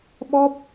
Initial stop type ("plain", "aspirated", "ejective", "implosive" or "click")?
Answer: implosive